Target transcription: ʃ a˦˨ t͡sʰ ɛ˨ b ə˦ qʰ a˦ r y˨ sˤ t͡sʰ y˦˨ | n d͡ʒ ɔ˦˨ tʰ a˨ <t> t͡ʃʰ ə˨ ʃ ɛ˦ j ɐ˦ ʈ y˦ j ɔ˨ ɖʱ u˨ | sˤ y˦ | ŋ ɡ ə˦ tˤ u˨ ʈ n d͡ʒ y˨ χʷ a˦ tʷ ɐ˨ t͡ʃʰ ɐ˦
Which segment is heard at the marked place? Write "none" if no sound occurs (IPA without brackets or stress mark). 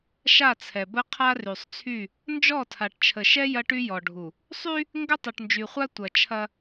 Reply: ʈ